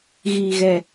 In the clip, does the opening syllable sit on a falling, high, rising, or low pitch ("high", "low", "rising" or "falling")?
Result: low